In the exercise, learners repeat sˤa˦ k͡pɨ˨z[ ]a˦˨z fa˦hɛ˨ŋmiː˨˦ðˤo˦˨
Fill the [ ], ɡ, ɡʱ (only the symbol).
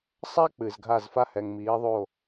ɡʱ